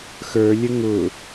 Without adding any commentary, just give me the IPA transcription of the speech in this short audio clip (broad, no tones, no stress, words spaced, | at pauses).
xə˞lʲə ŋʊ